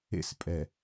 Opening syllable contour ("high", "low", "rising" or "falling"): high